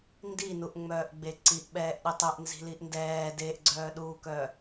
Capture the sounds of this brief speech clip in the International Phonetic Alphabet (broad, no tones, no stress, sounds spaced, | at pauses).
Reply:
n d i n u ʔ ŋ͡m œː ʔ ɡ͡b e ǀ i ʔ ɓ ɛː ʔ ɗ e tˤ ɛ ʔ n z i̤ l i ʔ n d ɛː d eː ʔ ɡ͡ǀ œː ɗ uː k œː